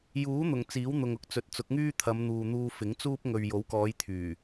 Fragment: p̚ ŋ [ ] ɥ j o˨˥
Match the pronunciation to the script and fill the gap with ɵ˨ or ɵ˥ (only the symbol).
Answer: ɵ˨